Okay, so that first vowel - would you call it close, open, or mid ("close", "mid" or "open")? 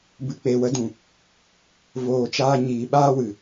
close